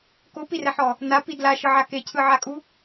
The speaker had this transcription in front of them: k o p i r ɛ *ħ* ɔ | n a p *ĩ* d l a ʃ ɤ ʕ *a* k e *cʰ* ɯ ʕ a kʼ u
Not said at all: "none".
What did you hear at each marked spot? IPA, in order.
ħ, i, a, cʰ

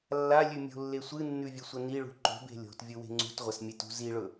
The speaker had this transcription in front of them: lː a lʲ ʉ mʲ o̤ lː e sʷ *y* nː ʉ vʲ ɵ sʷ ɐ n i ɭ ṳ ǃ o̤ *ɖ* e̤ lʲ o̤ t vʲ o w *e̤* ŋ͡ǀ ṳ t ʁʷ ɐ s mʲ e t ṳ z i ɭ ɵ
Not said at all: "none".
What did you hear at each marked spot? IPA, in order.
ɨ, b, e̤

